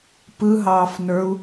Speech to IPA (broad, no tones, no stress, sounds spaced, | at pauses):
p ɯ ɦ ɑː f n ə˞ u̯